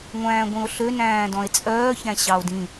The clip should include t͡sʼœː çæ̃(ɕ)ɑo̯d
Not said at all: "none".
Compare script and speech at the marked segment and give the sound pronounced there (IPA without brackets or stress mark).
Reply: ɕ